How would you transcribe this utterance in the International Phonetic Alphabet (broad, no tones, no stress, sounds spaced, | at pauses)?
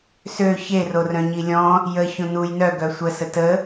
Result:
s ø ç e r o r œ̃ ɲ i lʲ ɔ̃ | j ə ç õ n u j n œ ɡ œ sʷ ə s ə t ə